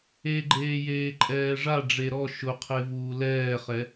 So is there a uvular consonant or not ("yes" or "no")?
yes